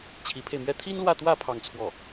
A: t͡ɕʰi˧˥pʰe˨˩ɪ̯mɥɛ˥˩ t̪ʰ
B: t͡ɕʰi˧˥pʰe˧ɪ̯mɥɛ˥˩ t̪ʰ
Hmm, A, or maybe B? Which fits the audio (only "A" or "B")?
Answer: B